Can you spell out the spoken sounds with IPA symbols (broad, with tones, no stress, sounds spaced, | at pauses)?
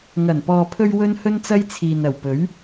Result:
ŋ ɐ˨˩ n p ɔː˨ pʰ ɵ˧ ɥ w ɵ˥ n h ɵ˥ n t͡s ɐ˥ j t͡sʰ iː˨ n ɐ˨˩ w p ɵ˨˥ ɥ